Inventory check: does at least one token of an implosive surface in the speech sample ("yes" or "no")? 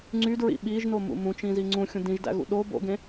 yes